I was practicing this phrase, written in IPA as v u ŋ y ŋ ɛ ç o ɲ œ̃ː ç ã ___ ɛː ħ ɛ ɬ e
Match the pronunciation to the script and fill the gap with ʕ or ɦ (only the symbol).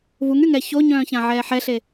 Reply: ʕ